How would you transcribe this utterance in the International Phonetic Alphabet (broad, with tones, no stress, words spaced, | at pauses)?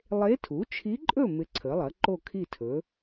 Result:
lˠe˧˥tʰu˩˥t͡ʃʰi˧˥ǃʼɵ˥˨ mɪ˧˥ǀʰə˩˥lˠɐ˩˥ǃo˥˨ kʰi˥˨tʰɵ˩˥